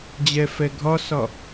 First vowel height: mid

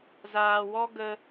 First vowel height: low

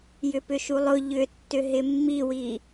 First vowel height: high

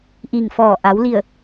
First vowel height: high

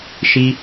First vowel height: high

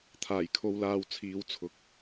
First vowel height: low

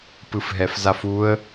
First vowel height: high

